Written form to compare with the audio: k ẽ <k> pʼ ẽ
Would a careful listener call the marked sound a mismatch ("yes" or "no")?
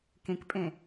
no